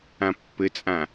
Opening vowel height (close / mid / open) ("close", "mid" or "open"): open